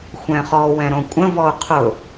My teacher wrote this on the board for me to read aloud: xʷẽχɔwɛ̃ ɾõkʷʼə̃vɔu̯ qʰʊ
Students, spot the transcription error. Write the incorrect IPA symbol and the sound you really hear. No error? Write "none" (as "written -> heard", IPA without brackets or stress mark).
ẽ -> ɛ̃